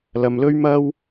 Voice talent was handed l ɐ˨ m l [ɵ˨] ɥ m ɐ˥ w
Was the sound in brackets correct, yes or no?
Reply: no